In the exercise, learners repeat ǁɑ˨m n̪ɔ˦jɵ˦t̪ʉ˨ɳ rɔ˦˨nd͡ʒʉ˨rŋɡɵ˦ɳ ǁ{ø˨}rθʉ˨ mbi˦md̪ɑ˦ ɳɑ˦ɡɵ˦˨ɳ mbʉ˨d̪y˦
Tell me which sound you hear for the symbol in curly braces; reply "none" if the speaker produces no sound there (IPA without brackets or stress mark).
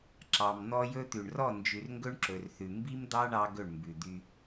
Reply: ɵ˨